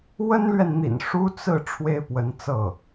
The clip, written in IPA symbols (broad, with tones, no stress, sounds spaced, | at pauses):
w ə˥ n l ɥ ɛ˨ n n̪ ḭ˨˩ n ʂ u˥ t͡s ɹ̩˥˩ ʈ͡ʂʰ w e˥ ɪ̯ p w ə˧˥ n t͡s ɤ˥˩